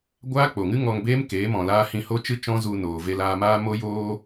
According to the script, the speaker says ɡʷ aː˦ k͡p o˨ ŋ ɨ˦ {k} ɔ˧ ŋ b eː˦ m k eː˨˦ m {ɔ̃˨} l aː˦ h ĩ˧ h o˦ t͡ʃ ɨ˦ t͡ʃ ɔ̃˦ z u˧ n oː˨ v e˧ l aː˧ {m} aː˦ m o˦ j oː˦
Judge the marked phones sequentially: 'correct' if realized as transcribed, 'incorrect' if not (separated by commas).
incorrect, correct, correct